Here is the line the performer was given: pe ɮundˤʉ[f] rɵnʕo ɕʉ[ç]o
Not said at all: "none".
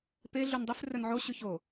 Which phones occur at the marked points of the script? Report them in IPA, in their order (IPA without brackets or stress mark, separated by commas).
f, ç